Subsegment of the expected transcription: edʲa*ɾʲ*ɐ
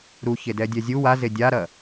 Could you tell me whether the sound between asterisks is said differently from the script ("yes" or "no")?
yes